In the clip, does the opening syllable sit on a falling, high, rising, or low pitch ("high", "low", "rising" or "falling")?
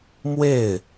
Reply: falling